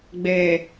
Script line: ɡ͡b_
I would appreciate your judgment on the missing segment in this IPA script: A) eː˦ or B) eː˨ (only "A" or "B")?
B